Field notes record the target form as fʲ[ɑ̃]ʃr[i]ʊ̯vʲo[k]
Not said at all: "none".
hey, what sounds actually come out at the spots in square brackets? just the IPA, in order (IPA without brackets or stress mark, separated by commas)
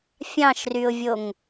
ɑ̃, y, ŋ